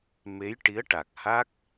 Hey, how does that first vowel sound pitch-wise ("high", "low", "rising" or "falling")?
rising